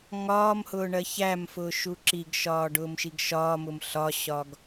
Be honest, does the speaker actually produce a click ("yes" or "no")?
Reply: yes